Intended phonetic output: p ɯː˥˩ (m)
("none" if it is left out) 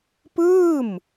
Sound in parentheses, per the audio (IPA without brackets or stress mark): m